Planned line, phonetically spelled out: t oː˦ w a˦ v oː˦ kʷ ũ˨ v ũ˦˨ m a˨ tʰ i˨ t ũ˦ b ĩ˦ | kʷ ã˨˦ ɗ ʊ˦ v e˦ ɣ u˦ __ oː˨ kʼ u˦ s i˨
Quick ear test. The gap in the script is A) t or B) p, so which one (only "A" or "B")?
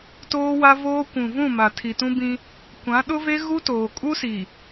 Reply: A